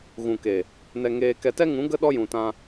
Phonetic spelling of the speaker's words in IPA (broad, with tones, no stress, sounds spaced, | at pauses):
ɣ ũ˨ k e˨ | n ɛ˧ ŋ eː˧ k ɛ˧ t ɛ˦ ŋ ũ˨˦ ɡ ə˦ ɗ ɔ˦ j ũ˨ t ã˧